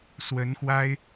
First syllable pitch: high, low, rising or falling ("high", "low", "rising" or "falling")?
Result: rising